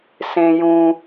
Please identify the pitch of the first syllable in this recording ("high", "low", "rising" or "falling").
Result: high